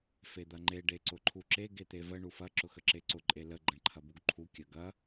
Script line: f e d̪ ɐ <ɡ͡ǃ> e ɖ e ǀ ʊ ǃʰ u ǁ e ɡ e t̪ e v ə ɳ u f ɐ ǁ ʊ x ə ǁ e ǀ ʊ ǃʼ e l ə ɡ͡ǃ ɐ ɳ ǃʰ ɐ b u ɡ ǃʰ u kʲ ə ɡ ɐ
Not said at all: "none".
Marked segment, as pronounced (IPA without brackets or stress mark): ŋ͡ǃ